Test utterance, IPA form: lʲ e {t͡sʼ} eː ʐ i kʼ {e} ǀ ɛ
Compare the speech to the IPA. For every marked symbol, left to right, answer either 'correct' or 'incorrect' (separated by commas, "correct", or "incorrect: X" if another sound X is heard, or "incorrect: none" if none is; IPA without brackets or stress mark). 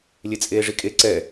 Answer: correct, correct